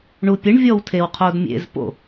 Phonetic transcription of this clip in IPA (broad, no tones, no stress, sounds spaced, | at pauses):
ɳ u pʲ ɘ ɳ vʲ ɔ w tʰ e w qʰ o d mʲ ḛ z p o̰